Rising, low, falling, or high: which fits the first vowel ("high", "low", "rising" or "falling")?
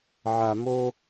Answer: high